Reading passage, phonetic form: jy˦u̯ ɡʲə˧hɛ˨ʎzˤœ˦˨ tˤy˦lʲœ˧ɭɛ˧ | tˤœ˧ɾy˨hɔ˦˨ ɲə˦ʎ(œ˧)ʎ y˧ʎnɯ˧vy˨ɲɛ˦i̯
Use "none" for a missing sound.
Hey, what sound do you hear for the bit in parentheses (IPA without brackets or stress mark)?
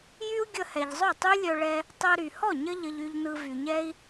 ə˧